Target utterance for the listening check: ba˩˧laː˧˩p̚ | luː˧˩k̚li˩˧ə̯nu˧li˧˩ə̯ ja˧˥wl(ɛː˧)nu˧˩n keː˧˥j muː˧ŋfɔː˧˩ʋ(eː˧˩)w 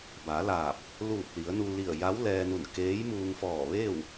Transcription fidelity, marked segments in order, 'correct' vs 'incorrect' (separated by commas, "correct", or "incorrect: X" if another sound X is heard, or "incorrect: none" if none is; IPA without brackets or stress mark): correct, incorrect: eː˥˨